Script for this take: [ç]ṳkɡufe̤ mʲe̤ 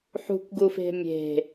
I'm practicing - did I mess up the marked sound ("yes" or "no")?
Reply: yes